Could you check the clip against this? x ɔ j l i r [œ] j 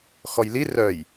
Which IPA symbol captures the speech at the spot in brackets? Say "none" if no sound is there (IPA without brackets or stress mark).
œ